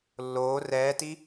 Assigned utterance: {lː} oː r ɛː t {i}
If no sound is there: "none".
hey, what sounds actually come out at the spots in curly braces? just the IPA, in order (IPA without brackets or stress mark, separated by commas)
lː, i